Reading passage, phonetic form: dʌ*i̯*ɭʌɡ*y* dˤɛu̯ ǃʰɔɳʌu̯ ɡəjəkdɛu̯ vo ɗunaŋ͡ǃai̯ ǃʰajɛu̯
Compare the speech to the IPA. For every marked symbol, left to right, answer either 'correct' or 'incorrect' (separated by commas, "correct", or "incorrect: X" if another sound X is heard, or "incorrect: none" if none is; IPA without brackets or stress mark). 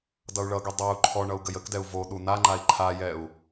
incorrect: u̯, correct